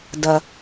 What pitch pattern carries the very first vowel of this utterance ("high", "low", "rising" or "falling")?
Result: low